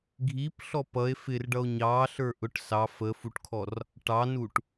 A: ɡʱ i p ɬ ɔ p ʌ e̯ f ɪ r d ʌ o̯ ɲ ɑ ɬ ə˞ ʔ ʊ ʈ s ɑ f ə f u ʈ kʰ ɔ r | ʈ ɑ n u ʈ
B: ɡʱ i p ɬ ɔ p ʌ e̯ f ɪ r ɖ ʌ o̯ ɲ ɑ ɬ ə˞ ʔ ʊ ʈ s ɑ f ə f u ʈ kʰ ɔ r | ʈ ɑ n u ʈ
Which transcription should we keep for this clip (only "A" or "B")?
B